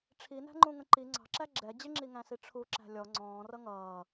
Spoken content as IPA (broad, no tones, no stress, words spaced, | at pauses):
ʈ͡ʂʰinæ̤ŋ͡ǃũŋə̃ ǃi ŋ͡ǀɑ̤ǁæ ɡ͡ǁɛ d͡ʑɪŋ͡ǁiŋæ̃si ʈ͡ʂʰuǁæ̤ lʲɔ ŋ͡ǀɔ̃ːrʌ ŋʌː